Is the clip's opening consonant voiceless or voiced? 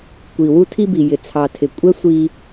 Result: voiceless